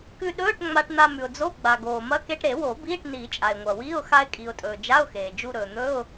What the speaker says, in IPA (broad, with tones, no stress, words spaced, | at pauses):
kʉ˧ɗɵː˧˥˧ʈ ŋ͡ma˧ʈn̪a˧ mʉ˩ʊ̯d͡zo˧˥˧ ɡ͡ba˩ ɡoː˩mɐ˧˥˧ ke˧ʈɾe˨˩˦wo˨˩˦ biː˧˥˧ʈniː˨˩˦t͡ʃʼa˩ɪ̯ ŋʷɐ˩wi˧˥˧ʊ̯ xa˧ɪ̯kʼi˩ʊ̯tʼɵː˩ d͡ʒa˧˥˧ʊ̯xeː˩d͡ʒu˧ ɾɵː˩n̪ɵ˧˥˧ʊ̯